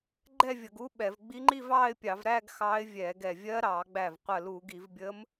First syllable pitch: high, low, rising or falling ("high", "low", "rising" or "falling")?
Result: falling